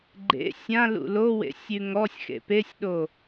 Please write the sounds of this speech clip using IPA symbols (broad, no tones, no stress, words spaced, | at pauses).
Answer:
ɡ͡ǃḛ sʲãlṵ lowḛ sʲʉŋɔsʲxḛ pesʲɗo